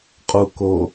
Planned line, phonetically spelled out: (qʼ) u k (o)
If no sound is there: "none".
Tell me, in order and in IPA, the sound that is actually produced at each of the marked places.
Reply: qʼ, o

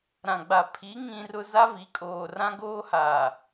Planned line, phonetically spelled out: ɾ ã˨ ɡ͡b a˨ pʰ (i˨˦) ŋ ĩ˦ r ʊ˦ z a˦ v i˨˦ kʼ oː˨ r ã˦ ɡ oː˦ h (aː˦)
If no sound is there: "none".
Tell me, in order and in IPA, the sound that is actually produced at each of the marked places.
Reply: i˨˦, aː˨

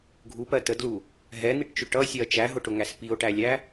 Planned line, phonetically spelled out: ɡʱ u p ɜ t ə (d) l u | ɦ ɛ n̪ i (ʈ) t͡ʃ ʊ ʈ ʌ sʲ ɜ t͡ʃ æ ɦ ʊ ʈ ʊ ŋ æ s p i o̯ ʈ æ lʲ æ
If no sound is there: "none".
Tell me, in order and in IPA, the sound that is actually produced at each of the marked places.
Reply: d, ʈ

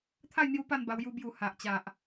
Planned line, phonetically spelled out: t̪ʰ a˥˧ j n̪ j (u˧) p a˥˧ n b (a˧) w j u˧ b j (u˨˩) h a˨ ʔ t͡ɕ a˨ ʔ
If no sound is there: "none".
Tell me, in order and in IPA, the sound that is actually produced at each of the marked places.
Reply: u˧, a˧, u˨˩

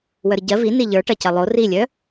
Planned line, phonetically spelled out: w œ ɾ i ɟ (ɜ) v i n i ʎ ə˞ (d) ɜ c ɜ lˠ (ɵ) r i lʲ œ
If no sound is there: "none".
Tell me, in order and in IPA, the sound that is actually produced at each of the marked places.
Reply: ɜ, ʈ, o

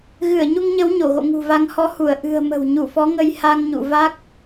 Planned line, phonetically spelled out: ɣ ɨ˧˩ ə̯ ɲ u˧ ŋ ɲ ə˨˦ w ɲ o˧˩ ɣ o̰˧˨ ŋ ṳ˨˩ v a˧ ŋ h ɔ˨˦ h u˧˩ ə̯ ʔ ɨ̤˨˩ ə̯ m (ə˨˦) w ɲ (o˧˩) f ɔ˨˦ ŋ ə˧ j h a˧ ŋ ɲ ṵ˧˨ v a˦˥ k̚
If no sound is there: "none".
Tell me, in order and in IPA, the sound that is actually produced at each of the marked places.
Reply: ə̤˨˩, u˧˩

